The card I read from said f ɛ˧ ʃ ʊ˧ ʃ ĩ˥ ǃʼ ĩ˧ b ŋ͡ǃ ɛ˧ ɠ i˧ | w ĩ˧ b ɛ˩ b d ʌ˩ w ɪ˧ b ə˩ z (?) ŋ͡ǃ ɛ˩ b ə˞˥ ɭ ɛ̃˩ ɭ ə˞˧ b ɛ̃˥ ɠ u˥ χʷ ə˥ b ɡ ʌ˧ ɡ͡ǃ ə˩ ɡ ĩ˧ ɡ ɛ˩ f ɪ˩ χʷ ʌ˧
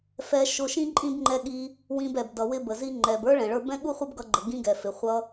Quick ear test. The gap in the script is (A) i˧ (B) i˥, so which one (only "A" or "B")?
A